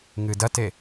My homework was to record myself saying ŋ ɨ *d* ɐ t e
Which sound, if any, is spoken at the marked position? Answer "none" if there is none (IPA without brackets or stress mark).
d